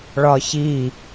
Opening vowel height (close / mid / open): open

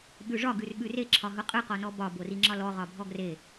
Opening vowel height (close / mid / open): close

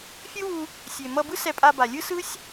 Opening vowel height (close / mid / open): close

